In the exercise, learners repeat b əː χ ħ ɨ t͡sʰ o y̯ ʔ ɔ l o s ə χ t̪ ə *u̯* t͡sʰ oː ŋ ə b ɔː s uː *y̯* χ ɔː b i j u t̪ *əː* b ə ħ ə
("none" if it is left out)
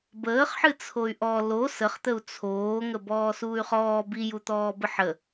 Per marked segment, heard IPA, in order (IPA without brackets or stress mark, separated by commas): u̯, y̯, ɔː